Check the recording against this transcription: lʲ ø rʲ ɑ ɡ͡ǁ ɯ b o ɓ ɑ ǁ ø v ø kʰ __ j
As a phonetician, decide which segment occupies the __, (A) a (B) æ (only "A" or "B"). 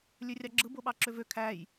B